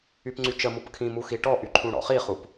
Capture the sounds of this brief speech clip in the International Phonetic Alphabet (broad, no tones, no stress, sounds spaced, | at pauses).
y p ŋ͡ǀ y t͡ʃ ə m u p kʰ ĩ m u x i ʈ ɔ ʔ y ǃʰ ũ ɽ ɔ̰ χ i χ u p